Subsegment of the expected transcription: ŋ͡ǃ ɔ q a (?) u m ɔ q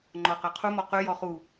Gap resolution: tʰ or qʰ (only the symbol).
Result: qʰ